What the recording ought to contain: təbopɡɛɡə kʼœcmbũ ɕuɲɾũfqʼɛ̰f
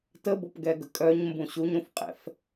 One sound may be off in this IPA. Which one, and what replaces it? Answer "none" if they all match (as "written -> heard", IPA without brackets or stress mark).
c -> ɲ